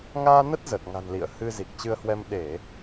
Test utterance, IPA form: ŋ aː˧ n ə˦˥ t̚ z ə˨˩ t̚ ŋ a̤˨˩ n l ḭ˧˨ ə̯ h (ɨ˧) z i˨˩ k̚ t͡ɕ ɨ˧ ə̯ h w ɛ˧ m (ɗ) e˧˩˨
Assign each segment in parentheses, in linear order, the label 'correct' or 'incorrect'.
correct, correct

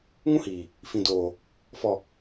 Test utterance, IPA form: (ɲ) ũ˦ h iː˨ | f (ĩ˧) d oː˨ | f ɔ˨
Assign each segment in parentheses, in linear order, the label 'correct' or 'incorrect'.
incorrect: ŋ, incorrect: ĩ˨

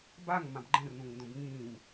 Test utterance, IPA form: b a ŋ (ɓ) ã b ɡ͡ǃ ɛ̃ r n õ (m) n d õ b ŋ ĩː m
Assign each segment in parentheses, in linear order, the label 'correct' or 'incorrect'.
incorrect: m, incorrect: ŋ

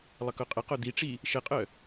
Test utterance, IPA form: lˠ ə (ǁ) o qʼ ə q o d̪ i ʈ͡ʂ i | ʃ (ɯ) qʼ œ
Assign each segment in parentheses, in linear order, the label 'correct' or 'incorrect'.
incorrect: k, incorrect: ə

